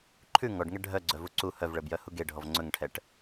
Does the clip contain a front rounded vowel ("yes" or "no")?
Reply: yes